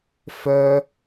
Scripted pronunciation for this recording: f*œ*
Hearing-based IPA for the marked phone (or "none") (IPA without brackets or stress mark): œ